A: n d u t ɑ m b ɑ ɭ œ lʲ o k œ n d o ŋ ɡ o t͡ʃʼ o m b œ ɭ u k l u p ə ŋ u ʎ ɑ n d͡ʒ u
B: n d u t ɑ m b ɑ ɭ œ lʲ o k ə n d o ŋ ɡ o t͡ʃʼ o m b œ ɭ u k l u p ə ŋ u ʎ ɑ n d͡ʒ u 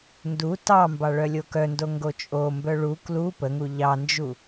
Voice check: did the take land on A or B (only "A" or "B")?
A